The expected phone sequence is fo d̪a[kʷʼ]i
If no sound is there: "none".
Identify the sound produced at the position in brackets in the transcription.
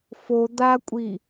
kʷʼ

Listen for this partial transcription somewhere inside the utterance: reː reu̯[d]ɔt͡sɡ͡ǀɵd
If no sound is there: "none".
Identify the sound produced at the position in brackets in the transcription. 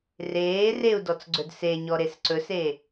d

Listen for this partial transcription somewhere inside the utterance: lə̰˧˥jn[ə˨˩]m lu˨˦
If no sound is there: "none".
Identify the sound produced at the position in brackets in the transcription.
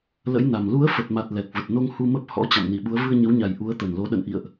a˨˩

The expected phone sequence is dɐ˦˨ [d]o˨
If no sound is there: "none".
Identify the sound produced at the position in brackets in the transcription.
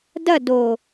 d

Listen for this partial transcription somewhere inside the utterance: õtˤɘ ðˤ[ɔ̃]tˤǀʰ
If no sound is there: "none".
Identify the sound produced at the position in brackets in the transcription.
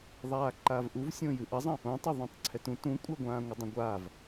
õ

